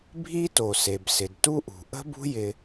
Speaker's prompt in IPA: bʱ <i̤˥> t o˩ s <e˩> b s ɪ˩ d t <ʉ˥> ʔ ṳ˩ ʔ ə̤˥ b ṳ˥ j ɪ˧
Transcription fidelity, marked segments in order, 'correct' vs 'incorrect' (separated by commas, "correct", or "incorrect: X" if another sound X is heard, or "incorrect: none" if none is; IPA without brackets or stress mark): incorrect: i˥, correct, incorrect: u˥